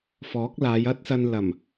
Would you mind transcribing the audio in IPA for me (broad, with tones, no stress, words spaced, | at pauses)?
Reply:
fɔː˨˥k̚laː˨˧j ɐ˥t̚sɐ˧n lɐ˨˩m